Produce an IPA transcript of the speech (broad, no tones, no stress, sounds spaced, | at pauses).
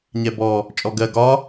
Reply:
ɲ ɛ b ɔ | t͡ʃʼ ɔ ɡ ɜ ɡ ɒ